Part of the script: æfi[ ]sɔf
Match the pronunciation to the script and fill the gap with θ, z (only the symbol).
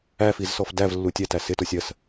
z